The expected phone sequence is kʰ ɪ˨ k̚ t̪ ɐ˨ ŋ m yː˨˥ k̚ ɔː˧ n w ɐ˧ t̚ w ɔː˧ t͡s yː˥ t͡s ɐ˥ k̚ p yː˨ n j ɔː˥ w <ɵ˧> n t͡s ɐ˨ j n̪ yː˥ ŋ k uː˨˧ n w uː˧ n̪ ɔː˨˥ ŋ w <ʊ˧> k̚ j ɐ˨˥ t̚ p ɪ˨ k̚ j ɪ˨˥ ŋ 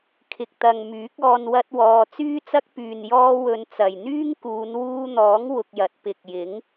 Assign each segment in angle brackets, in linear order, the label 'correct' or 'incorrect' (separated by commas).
correct, correct